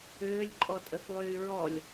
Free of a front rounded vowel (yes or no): no